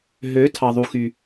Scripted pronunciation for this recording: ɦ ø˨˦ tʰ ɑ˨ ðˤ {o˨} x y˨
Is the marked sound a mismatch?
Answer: yes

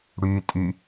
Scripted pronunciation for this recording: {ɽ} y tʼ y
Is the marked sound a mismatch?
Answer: no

